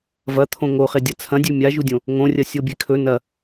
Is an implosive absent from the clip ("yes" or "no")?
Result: yes